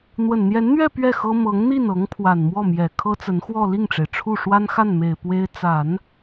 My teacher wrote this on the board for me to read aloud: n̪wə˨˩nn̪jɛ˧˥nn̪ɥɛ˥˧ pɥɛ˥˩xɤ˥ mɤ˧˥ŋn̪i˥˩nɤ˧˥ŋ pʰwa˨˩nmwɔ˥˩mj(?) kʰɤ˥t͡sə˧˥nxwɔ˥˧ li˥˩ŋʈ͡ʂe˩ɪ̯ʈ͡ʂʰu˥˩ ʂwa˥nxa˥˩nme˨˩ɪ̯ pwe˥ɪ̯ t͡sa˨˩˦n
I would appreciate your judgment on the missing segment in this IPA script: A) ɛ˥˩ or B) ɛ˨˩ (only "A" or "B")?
B